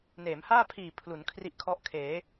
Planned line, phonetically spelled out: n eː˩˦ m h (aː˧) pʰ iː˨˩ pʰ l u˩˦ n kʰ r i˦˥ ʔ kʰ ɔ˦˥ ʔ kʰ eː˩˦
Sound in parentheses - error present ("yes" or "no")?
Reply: yes